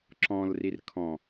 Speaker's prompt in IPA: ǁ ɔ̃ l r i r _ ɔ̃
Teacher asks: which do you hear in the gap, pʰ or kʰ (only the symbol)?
kʰ